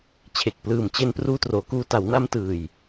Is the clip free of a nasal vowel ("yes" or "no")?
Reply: yes